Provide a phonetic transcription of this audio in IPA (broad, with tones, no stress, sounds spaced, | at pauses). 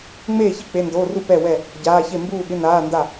ŋ͡m eː˥˨ ç i˥˨ k͡p e˧˥˧ n d oː˧˥˧ r u˥˨ p ɛ˥˨ w ɛ˥˨ | ɟ aː˧˥˧ ç e˥˨ m b uː˥˨ ɠ ɪ˧˥˧ n aː˧˥˧ n d a˥˨